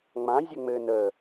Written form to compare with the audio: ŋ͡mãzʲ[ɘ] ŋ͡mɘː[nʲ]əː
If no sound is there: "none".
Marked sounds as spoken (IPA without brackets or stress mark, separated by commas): ɘ, n